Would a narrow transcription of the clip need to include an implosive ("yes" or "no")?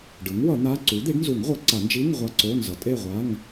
no